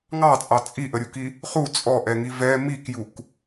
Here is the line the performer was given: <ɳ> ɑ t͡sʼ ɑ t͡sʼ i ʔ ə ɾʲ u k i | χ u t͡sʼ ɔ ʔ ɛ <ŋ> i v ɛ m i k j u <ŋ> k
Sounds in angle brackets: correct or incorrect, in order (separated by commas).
incorrect, correct, incorrect